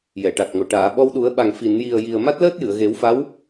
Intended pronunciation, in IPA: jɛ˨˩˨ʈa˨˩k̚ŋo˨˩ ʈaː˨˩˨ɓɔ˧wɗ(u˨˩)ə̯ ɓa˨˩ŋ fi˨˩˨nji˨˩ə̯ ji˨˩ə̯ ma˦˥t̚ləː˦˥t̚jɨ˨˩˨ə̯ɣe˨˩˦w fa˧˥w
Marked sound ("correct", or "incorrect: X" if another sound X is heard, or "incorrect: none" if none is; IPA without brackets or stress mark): incorrect: u˨˩˦